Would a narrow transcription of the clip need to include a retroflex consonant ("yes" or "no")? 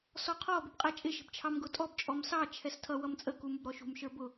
no